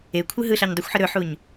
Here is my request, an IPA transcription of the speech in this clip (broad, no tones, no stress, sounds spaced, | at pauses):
e kʷʰ ɯ ɦ ɯ ɬ a ɲ dˤ u xʷ ħ ə ɾ ɵ ħ u ɲ